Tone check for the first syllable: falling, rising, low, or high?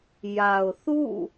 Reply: low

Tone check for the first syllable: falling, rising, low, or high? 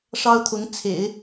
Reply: high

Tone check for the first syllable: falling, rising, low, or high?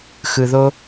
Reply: low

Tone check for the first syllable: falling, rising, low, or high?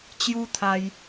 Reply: high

